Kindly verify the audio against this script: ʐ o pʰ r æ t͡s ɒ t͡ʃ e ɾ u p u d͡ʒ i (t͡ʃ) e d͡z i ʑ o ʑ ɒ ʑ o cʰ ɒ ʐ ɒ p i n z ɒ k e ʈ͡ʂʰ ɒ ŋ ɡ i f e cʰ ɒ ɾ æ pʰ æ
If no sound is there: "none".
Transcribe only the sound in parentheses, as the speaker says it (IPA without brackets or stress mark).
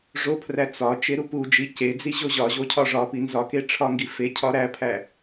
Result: c